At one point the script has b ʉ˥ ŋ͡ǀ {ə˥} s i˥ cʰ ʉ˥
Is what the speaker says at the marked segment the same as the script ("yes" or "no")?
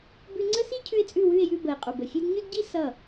yes